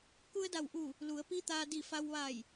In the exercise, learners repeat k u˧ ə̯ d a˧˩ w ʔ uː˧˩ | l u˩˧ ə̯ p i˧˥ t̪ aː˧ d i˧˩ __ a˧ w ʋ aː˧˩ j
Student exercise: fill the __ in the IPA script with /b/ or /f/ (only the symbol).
f